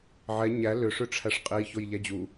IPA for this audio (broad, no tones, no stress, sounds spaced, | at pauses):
ʕ ɛ ɲ æ l ʏ ʂ ʏ ʈ͡ʂʰ æ ʂ qʼ e j ç o j ʎ æ d͡ʑ u